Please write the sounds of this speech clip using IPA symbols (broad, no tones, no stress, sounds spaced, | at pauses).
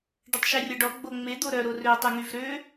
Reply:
ɖ ə tˤ ʃ ɛ rʲ ɔ ɖ ɔ ɡ͡b o ŋ͡m e d̪ o ɾ œ ɾ o r ø tˤ ɛ ŋ y v ɾ ø